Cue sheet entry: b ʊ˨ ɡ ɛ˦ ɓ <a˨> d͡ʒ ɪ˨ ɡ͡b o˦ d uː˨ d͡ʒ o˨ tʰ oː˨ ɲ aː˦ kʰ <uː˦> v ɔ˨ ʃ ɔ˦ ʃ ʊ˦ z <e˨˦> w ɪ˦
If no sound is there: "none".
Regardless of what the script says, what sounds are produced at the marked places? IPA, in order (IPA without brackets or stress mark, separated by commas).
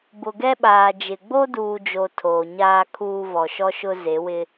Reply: aː˨, uː˦, e˨˦